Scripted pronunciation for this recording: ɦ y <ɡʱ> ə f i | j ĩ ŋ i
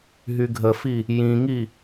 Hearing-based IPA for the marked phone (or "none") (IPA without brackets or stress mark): ɡʱ